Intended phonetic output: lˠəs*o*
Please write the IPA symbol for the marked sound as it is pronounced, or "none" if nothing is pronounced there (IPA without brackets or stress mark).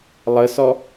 ɔ